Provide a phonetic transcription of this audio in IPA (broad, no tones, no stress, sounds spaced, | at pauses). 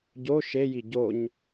ɟ o ʃ e j i ɟ o ɲ